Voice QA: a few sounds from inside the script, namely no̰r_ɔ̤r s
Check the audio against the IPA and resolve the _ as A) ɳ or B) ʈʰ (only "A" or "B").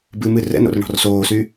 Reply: A